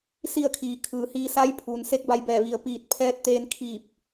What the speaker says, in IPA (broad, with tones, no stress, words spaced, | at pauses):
si˥˨ə̯kʰiː˩ kʰɯː˩ hiː˧sa˧˥j pʰuː˩n se˧˥k̚ba˧jbɛː˧˩ ʋi˩ə̯piː˧˩t̚ pʰɛː˧˥t̚t̪eː˧nkʰiː˧˩p̚